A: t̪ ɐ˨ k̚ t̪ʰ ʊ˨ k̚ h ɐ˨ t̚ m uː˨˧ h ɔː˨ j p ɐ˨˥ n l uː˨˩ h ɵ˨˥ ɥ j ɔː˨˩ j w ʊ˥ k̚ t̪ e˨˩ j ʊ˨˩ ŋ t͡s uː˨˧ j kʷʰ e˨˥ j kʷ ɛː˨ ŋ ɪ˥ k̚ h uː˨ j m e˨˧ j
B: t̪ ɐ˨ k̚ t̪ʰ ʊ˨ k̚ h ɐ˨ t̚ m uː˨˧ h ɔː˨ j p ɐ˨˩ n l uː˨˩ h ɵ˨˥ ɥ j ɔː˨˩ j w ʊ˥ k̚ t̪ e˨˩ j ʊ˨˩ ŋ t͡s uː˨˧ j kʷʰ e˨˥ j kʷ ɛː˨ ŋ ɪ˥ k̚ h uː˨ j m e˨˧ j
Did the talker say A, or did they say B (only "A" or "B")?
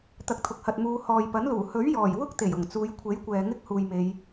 A